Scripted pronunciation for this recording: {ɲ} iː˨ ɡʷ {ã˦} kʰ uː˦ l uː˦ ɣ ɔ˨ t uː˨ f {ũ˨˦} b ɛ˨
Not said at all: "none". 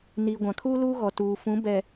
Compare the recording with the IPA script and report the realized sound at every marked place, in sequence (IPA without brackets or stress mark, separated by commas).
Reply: n, ã˨, ũ˨˦